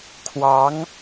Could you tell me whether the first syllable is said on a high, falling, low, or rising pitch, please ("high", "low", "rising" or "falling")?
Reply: rising